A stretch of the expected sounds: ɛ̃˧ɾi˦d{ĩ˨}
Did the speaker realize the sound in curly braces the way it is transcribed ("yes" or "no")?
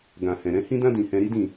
no